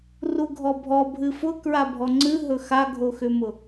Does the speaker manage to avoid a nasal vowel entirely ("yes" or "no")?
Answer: yes